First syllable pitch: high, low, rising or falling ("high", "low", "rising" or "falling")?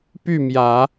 falling